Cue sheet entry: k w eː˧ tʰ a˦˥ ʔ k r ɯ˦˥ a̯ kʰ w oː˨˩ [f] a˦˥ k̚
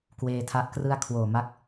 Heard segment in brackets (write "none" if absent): m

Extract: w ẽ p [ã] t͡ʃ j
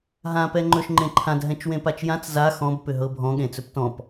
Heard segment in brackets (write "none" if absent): a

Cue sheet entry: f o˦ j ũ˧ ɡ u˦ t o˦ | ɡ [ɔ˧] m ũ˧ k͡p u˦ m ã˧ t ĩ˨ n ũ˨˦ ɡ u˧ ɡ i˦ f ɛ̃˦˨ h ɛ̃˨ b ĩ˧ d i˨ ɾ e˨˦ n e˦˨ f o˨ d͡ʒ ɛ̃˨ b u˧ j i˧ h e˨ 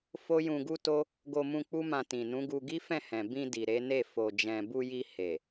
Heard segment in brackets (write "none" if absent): o˧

